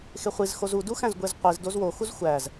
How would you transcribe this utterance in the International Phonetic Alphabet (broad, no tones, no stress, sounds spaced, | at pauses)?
x e χʷ i z x o z u d u x æ̃ z ɡʷ e z qʷ i z d o z w o x u z xʷ æ z